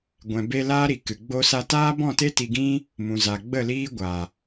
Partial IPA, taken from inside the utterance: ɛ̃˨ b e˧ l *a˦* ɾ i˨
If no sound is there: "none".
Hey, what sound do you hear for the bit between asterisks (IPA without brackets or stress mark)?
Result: aː˦